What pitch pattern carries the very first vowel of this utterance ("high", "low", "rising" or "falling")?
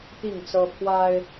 falling